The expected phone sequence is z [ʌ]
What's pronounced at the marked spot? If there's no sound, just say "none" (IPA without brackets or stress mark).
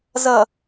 ʌ